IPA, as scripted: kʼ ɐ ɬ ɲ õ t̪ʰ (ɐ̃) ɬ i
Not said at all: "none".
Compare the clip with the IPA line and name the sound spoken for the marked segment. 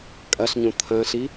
ɐ̃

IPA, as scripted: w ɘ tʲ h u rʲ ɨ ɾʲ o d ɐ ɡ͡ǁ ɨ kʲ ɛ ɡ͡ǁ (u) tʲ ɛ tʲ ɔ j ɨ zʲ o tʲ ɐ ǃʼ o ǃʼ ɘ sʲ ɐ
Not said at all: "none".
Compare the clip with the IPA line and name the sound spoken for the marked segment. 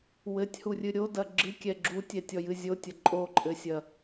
u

